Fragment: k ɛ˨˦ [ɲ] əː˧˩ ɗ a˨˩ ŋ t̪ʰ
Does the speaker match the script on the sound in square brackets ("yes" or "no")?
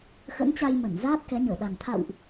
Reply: yes